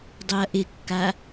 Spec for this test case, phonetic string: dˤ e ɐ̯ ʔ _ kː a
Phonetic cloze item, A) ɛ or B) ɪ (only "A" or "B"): B